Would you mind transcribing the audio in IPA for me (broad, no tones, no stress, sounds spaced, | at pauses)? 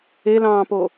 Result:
e l ɑ̃ː p o